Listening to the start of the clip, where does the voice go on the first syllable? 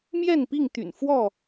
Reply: falling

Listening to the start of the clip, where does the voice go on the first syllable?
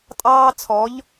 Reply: high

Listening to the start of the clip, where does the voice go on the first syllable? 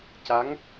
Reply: rising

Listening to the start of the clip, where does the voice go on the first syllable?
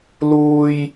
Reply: low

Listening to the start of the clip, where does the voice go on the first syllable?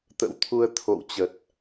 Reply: rising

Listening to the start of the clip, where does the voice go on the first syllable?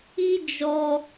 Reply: high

